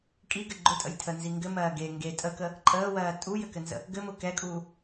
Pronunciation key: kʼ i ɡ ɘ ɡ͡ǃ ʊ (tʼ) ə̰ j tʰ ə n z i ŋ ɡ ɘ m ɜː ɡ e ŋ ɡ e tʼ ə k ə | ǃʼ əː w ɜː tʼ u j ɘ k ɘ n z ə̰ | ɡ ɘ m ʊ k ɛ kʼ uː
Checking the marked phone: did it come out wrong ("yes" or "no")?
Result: no